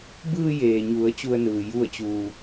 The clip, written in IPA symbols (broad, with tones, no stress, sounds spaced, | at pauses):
b ɯː˧ j eː˩ ɲ u˩˧ ə̯ t͡ɕ u˧ ə̯ n ɯː˩ j u˥˨ ə̯ t͡ɕ uː˧